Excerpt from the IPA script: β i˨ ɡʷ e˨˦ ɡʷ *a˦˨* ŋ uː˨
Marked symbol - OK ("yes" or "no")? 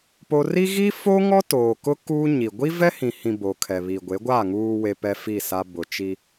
yes